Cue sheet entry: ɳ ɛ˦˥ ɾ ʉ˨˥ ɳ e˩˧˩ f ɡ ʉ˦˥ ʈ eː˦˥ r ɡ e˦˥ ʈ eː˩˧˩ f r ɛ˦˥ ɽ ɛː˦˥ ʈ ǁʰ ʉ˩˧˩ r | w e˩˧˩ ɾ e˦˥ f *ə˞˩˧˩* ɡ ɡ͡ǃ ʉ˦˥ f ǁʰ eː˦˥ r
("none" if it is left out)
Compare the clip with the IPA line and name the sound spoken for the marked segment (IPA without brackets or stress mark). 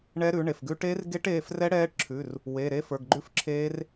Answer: ə˞˩˧˩